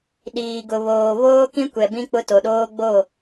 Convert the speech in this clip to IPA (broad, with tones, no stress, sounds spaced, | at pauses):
ɗ iː˨ ɡ ʊ˨ β oː˨ β oː˦ k ĩ˦ kʷ ɛ˨ b ĩ˦ k͡p ʊ˦ t o˨ ɗ oː˦ ɡ͡b o˦˨